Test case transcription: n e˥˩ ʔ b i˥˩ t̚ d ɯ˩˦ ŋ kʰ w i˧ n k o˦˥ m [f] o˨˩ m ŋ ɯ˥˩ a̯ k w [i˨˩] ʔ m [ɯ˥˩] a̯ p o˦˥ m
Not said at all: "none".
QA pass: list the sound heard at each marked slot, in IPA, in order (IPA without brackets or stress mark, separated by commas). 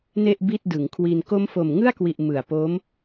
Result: f, i˨˩, ɯ˨˩